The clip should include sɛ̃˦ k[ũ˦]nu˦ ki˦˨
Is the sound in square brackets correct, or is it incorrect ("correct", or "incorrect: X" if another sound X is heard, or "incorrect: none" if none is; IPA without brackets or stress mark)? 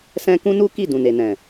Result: correct